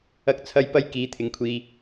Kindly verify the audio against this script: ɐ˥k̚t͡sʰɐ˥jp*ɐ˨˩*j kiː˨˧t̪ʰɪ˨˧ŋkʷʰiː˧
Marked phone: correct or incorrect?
incorrect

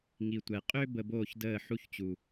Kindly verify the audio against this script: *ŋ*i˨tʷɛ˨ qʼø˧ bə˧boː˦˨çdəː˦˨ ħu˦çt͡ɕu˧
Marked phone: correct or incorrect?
correct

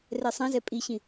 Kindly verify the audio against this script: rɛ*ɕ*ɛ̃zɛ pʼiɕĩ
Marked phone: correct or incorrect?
incorrect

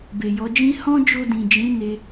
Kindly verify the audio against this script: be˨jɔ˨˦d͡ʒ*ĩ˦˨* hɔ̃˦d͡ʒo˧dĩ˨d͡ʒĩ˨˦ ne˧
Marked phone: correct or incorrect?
incorrect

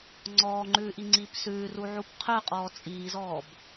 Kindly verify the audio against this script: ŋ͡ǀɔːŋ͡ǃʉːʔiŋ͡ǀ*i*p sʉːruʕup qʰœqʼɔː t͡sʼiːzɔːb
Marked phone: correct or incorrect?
incorrect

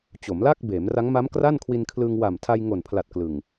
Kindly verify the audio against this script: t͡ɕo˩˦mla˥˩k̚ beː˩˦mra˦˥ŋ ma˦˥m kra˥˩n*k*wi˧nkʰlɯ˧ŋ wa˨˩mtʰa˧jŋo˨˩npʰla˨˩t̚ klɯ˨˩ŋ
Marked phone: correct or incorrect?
incorrect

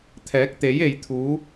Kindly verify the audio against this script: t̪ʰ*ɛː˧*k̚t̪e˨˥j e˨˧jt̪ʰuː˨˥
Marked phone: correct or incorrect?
incorrect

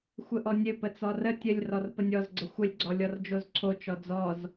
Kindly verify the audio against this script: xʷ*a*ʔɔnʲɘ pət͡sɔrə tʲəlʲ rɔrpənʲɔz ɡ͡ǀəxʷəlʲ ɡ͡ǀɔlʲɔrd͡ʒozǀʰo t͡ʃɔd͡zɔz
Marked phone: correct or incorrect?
incorrect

